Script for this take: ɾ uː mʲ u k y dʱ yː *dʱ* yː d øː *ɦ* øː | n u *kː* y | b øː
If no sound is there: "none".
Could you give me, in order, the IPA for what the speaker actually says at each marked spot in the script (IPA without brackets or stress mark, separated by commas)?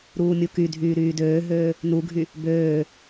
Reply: ɾ, ɦ, ɡʱ